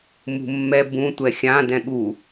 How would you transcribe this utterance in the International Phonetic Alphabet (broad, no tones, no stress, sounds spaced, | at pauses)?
m ṳ mː ɛ b ũ tʷ ɛ xʲ ã d ɛ̃ ɠ u